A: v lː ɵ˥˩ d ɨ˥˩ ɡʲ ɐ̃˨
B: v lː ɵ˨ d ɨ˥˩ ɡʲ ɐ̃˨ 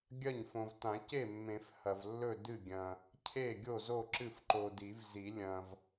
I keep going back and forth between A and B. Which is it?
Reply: A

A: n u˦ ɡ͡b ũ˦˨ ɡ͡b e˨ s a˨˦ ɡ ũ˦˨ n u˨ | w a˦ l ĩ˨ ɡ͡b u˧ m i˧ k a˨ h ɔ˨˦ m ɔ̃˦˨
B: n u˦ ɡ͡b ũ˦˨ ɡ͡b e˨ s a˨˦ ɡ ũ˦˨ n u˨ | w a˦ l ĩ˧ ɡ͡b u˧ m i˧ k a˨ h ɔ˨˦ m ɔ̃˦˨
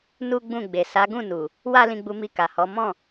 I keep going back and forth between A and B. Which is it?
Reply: B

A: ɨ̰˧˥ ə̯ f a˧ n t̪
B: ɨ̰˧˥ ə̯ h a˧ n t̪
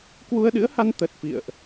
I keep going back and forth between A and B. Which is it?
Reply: B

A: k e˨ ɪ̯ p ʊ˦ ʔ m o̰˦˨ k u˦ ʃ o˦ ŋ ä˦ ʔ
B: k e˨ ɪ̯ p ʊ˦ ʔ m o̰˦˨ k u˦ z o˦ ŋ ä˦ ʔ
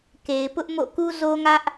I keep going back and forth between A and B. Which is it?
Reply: B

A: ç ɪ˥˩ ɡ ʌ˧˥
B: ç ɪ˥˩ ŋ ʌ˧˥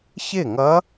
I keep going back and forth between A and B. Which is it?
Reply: B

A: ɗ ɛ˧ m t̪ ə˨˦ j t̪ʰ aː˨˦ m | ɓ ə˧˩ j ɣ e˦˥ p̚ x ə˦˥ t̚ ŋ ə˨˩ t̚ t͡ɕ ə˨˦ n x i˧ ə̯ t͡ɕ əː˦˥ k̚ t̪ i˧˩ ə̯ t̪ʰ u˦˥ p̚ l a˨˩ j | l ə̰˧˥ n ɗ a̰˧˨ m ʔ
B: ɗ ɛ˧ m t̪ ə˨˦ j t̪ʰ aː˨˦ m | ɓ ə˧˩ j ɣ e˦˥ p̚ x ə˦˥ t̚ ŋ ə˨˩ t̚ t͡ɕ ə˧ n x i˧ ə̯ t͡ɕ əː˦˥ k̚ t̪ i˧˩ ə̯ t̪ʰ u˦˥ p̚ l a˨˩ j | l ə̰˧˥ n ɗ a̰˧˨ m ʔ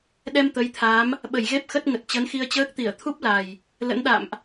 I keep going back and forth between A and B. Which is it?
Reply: A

